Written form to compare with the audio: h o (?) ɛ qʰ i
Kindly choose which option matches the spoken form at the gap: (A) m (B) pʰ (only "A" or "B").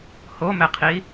A